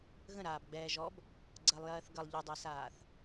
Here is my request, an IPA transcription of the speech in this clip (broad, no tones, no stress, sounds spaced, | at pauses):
ɣ ə̃ ɾ aː b ɡ͡b ɛː ʒ ɔ b | ɡ͡ǀ ɜ lˠ j ɜː θ ɡ ə lˠ ʎ ɯ dˤ ɛ s aː θ